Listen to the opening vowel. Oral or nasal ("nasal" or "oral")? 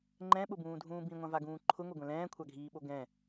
nasal